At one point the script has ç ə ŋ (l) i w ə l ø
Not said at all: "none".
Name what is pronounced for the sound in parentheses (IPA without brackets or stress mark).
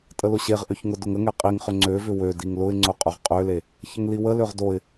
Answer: l